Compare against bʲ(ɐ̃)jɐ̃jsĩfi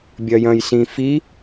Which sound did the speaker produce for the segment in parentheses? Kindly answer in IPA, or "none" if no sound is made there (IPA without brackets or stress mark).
ɐ